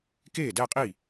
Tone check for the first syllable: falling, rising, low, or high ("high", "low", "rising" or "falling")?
falling